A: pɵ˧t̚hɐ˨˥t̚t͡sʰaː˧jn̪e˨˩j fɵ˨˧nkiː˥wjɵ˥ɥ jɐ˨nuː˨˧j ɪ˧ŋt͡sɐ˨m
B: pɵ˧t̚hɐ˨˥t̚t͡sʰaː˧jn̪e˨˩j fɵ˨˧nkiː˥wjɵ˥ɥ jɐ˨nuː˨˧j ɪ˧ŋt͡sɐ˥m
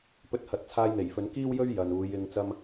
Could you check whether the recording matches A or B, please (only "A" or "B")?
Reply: B